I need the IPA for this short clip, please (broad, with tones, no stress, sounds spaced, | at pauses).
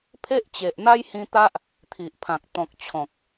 pʰ e˦ ʔ t͡ɕ e˨ ʔ n̪ a˦ j h ĩ˧ t̪ a˦ ʔ | t̪ʰ i˨ ʔ pʰ ã˨ k̚ t̪ ɔ̃˨ k̚ t͡ɕʰ ɔ̃˨ k̚